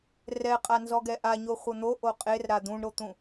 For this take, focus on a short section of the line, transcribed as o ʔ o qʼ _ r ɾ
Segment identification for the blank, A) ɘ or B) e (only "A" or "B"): B